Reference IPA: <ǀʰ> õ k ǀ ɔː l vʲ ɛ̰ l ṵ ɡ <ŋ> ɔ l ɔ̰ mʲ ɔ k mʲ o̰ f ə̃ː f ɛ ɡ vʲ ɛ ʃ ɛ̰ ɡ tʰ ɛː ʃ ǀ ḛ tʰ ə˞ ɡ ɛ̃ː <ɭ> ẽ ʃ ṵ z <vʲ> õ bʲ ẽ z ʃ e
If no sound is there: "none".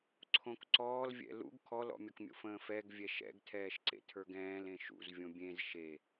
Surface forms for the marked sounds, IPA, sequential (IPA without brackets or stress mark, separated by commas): ǀʰ, kʰ, l, vʲ